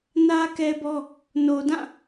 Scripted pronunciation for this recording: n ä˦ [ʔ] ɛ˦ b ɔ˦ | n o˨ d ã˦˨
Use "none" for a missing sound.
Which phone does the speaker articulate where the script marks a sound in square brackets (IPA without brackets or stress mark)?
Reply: k